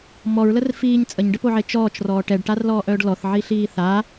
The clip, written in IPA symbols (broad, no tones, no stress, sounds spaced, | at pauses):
m ɔ ɹ l ə r f iː ɲ t͡sʼ ə ɲ ɖ ə p o ʕ e t͡ʃ ɔː t͡ʃ r ɔː ʈ ɛ ɖ ʈ a r l ɔː ʔ œː ɖ l ɔ θ ʕ i ɬ iː θ a